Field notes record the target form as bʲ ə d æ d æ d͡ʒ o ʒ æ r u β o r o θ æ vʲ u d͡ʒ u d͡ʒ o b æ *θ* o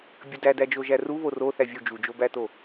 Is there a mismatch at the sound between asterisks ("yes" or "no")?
yes